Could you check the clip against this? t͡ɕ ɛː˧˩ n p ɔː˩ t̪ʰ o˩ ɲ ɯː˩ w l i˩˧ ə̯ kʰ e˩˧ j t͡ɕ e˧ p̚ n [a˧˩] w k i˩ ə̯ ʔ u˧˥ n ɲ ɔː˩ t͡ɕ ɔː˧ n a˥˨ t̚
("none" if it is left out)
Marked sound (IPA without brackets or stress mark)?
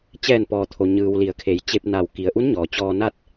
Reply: a˧˩